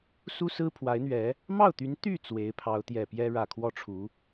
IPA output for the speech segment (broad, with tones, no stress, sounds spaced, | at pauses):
s u˥ s ɹ̩˥ pʰ w a˧˥ ɪ̯ n̪ ɥ ɛ˧˥ | m ɑ˥˩ ʊ̯ t̪ y˧˥ n t̪ y˥˩ t͡s w e˧˥ ɪ̯ pʰ ɑ˧˥ ʊ̯ t̪ j ɛ˨˩ p j ɛ˥ ɻ ä˨˩ kʰ w ɔ˥˩ ʈ͡ʂʰ u˧˥